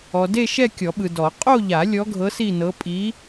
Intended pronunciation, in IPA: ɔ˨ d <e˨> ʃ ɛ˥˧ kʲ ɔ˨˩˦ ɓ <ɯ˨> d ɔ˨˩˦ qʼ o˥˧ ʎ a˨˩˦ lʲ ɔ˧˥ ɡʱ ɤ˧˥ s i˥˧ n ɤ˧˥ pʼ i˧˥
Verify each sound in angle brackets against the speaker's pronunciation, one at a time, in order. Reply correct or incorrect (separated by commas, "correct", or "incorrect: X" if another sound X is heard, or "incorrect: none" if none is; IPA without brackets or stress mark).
incorrect: e˥˧, correct